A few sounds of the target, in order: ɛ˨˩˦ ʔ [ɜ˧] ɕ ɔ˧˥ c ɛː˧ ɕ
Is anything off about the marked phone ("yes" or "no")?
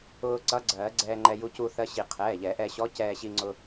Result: yes